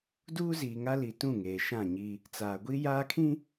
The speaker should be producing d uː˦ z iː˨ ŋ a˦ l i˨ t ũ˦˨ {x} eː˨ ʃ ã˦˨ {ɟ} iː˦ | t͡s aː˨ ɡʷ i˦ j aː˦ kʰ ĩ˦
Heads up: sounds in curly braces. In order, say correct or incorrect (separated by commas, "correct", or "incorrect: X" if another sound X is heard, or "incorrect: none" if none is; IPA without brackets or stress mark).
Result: incorrect: ŋ, incorrect: ɲ